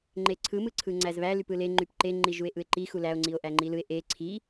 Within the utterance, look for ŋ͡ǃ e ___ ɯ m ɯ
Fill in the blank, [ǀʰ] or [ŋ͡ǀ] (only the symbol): ǀʰ